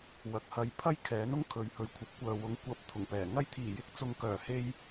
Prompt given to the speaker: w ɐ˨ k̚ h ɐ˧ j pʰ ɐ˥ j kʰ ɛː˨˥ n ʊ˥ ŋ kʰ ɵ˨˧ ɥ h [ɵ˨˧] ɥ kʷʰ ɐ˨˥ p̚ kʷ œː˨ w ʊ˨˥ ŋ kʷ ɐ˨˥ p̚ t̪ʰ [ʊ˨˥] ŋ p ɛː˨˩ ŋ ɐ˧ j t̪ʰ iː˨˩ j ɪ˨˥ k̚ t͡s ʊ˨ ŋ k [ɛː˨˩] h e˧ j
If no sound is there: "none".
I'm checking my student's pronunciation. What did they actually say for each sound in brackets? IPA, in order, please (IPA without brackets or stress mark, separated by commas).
ɵ˨, ʊ˨˩, œː˨˩